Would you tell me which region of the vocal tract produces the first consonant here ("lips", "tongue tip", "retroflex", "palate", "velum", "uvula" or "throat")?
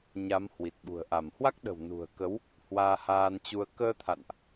palate